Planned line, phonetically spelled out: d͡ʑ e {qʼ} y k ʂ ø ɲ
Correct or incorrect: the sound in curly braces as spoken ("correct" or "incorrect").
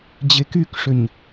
incorrect